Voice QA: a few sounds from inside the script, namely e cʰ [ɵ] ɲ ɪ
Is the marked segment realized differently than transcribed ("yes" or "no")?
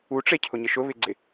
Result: yes